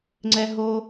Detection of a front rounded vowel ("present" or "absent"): absent